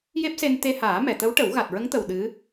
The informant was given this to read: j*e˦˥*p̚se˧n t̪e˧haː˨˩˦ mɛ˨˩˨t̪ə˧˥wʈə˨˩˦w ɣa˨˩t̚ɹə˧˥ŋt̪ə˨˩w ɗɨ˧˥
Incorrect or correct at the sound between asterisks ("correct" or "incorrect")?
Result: correct